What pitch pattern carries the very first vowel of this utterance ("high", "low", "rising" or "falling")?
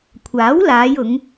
rising